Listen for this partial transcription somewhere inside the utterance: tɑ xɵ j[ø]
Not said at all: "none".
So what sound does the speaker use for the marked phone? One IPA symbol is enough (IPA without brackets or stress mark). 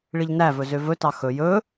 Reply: ɵ